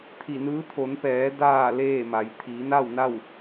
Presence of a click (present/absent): absent